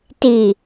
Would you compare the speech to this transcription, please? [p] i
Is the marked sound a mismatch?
yes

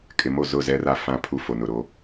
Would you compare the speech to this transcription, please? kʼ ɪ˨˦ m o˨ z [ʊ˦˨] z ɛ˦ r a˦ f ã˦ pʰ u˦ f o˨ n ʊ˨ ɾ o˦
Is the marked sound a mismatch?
no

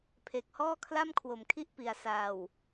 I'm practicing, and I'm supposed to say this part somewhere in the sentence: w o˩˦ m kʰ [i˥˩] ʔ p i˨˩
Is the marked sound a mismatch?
no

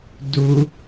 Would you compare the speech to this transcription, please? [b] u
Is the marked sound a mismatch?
yes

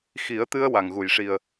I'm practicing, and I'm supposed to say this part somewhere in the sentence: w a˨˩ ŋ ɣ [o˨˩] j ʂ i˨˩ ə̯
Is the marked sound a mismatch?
yes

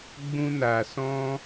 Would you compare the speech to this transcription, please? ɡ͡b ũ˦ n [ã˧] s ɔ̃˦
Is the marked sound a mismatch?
yes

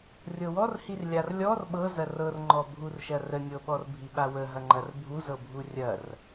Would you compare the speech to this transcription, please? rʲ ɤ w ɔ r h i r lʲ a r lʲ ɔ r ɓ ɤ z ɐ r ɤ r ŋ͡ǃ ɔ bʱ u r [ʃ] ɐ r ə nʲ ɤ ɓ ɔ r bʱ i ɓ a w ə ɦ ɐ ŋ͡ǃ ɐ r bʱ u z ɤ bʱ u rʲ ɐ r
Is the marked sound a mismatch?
no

